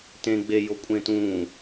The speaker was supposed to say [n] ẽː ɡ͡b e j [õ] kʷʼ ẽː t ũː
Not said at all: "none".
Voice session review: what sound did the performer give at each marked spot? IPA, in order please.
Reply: t, o

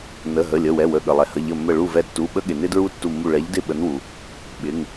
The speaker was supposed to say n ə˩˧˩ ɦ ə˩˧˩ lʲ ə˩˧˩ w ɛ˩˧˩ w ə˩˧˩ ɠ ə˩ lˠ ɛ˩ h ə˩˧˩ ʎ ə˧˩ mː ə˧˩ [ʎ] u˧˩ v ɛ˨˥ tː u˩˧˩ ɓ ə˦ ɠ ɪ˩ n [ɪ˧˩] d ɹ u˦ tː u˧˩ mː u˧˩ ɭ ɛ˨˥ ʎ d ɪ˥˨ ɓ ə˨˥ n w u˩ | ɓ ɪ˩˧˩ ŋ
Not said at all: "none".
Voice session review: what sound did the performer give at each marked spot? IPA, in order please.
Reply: ɭ, ɪ˦

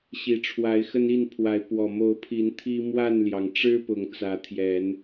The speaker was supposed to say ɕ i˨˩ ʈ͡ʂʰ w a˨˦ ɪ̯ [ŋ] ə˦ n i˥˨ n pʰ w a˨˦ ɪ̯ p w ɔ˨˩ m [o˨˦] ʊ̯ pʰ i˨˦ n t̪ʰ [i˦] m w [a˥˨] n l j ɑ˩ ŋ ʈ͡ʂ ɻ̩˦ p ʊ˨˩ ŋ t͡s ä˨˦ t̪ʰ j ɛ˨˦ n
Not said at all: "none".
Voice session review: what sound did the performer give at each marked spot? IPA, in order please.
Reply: x, o˨˦, i˦, a˥˨

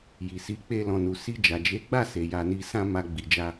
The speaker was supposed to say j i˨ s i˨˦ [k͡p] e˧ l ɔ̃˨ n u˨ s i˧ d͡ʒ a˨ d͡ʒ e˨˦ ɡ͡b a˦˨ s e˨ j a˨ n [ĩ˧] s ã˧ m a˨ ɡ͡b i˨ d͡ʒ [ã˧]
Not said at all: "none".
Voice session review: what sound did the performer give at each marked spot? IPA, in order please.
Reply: k͡p, i˧, a˧

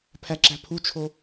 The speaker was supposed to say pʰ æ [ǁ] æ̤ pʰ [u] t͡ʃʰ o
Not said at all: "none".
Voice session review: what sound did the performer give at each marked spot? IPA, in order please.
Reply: ǁ, u

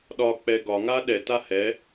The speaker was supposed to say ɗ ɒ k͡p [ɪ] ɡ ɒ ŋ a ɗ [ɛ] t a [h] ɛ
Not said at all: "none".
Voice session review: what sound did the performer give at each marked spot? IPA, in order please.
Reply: ɛ, ɛ, h

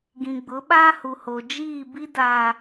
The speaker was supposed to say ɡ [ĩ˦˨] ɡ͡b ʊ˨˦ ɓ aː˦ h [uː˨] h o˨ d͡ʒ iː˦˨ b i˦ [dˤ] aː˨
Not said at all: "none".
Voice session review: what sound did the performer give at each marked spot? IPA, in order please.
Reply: ĩ˨, u˨, d

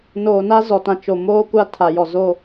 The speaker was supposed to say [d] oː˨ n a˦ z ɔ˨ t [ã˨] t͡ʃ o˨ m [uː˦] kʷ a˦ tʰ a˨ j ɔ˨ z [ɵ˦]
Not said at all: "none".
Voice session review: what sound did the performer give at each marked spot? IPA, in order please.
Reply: n, ã˨, oː˦, o˦

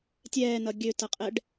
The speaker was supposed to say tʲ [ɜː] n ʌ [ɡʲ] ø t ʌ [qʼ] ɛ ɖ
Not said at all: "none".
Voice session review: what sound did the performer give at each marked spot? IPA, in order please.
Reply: ɛː, ɡʲ, qʼ

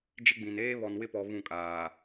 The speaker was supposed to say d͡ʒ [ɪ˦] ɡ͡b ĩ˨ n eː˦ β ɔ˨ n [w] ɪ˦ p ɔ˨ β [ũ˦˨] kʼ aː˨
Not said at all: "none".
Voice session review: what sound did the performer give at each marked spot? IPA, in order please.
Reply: ɪ˦, w, ũ˦˨

